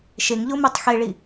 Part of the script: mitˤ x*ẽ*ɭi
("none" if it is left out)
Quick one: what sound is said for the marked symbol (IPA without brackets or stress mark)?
e